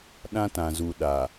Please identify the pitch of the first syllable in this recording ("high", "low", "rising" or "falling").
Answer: high